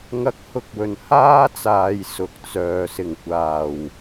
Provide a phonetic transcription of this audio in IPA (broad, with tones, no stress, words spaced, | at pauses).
ŋɐ˧k̚hʊ˧k̚wɵ˨˩n haː˥t͡saː˨j sʊ˨k̚t͡sœː˨ sɪ˨˩ŋkʷaː˨˩w